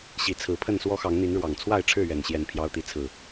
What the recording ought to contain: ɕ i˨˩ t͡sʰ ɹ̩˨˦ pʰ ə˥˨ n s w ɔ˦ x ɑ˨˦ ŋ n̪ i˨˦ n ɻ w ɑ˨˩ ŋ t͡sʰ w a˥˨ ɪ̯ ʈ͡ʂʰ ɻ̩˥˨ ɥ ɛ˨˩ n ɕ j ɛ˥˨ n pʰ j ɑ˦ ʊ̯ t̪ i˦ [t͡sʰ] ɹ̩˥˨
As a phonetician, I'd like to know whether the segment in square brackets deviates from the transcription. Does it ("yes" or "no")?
no